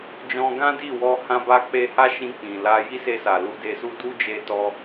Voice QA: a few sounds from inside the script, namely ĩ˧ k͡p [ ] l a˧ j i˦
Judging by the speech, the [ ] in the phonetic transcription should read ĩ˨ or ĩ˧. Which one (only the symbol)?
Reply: ĩ˨